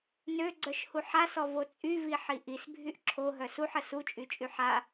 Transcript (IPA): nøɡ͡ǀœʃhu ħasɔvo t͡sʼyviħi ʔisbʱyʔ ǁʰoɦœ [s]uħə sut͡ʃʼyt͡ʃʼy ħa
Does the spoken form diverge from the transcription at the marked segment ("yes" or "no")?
no